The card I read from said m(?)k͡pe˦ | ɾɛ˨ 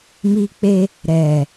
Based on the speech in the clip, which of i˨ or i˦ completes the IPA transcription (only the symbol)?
i˦